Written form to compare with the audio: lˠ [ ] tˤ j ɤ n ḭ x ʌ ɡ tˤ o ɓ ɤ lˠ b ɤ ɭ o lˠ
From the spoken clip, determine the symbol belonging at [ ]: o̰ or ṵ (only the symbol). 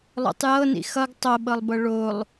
o̰